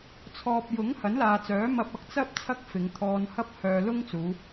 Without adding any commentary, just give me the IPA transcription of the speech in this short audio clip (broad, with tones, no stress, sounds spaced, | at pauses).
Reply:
t͡sʰ ɔː˨ p̚ j ʊ˨˥ ŋ h ɐ˨˥ n l aː˨ t͡s œː˨˥ m ɐ˧ p̚ ɐ˨ k̚ t͡s ɐ˥ p̚ t͡sʰ ɐ˥ k̚ f ɪ˨˧ ŋ t̪ʰ ɔː˧ n h ɐ˥ p̚ h œː˨ l ʊ˥ ŋ t͡s uː˨˧